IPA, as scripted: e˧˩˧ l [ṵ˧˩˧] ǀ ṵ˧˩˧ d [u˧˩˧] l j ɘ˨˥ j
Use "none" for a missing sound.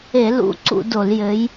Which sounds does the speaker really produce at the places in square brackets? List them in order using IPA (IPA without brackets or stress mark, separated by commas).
ṵ˧˩˧, o˧˩˧